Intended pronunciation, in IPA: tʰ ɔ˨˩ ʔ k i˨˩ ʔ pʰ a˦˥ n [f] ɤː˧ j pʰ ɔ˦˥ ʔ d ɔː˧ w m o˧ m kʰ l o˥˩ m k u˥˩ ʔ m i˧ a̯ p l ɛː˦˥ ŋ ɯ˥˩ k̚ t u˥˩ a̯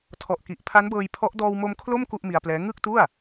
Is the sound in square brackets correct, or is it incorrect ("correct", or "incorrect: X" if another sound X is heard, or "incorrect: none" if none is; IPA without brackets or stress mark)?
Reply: incorrect: b